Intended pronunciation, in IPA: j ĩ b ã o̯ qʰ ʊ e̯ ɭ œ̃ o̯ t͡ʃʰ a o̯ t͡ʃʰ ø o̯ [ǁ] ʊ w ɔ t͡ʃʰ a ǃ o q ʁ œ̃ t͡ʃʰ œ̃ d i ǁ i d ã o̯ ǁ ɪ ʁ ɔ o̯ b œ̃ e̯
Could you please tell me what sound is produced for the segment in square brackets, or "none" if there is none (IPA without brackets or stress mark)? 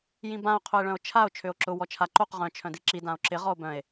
ǁ